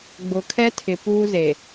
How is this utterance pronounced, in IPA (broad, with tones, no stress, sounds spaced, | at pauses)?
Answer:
ɡ͡b ʊ˨ kʰ ɛ˦ tʰ ɪ˨ p uː˦ z e˨